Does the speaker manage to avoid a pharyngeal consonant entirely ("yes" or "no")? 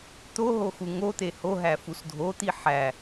no